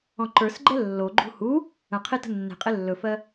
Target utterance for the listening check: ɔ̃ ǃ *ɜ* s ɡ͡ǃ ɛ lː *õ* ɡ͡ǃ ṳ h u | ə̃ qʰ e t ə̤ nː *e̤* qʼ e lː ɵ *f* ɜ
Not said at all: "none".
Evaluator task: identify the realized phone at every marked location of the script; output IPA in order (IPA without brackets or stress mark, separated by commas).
ə˞, o, e̤, f